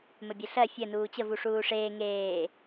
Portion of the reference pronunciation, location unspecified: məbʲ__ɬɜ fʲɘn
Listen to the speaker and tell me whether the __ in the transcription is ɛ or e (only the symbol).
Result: e